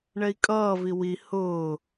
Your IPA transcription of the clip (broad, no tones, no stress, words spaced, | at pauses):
ɳɛi̯kʼʌːvi wi hʊː